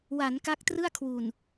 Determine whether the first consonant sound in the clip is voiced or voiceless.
voiced